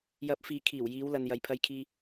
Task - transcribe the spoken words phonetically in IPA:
j ɐ˨˥ p̚ f iː˨ kʰ iː˨˩ w j iː˨˧ w l ɐ˨ n j ɐ˨ j pʰ ɐ˧ j kʰ iː˧

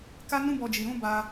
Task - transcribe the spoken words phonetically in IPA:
k a˦ n ũ˦ b ɔ˧ d͡ʒ i˨ ɾ ũ˨˦ b a˧

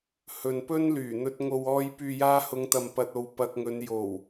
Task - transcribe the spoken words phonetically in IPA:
h ɵ˨ n p ɵ˥ n l yː˨˩ n̪ ɵ˧ t̚ ŋ o˨ w ɔː˧ j p yː˨ j aː˧ h ʊ˨˧ ŋ t̪ ɐ˨ m p ɐ˨ t̚ o˨ w p ɐ˧ k̚ ŋ ɵ˨˧ n j o˨˩ w

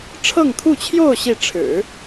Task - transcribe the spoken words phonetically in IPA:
ʈ͡ʂʰ ɤ˥˧ ŋ t̪ʰ u˥˧ t͡ɕʰ j o˥˧ ʊ̯ ɕ i˥˩ ʈ͡ʂʰ ɻ̩˨˩˦

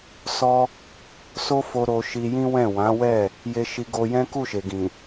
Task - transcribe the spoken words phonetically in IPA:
s ɔ˧ | s o˦ f o˧ ɾ o˧ ʃ i˧ j ĩ˦ w ɛ̃˦˨ w ã˨˦ w ɛ˦˨ | j e˧ ʃ i˧ ɡ o˧ j ɛ̃˦ k u˦˨ ʃ e˨ ɡ ĩ˨

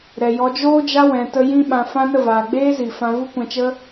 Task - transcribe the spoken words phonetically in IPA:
ɾ ɛ˨ j ɔ˧ d͡ʒ oː˦ d͡ʒ a˦ w ɛ̃˧ t ə˦ j ĩ˦ ɓ ã˧ f ã˦ n ə˦˨ v aː˨ ɡ͡b eː˦ z i˨ f ã˧ v u˦ kʷ ɛ̃˧ t͡ʃ ə˦

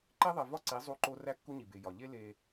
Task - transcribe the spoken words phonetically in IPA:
ǃ e˦ ðˤ i˨ v ɒ˦ ǀ i˨˦ zˤ u˦ ǃ o˦ r æ˦ kː u˦ ɲ i˨ b e˨ j ɒ˨ ʎ e˦ l e˦

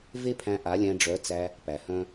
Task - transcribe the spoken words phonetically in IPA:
v e˦ pʰ æ̃˧ ʔ a˨˦ lʲ æ̃˧ ɖ͡ʐ œ˨˦ t͡s æ˧ | p æ˨ h œ̃˦

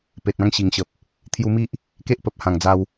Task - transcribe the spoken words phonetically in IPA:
p e˨ t̚ ã˧ ŋ ɕ i˨˩ ŋ ɕ ə˨ p̚ | t̪ʰ j u˧ m i˦ ʔ | k e˦ ʔ p ə˨ p̚ h ã˨˩ ŋ d͡z a˧ w

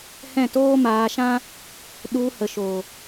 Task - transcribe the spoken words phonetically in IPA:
h ɛ̃˦˨ t oː˦ m aː˧ ʃ ã˦ | ɗ u˧ h ə˨ ʃ o˨

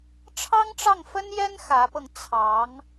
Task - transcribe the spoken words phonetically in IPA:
ʈ͡ʂʰ ɑ˥ ŋ ʈ͡ʂ ɑ˥˩ ŋ f ə˥ n j ɛ˥ n x ä˧˥ p ɤ˧ ŋ t͡sʰ ɑ˧˥ ŋ

